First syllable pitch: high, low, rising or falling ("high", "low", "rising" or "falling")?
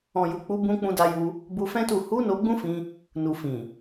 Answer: low